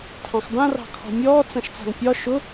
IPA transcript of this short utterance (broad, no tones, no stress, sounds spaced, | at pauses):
tʰ ɑ̃ x b ã r ɑ̤ kʰ ɔ̤ mʲ ɔː t͡s ã ʃ t͡s a̤ ŋ pʲ ɒ ʃ ʊ